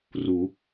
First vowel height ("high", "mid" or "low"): high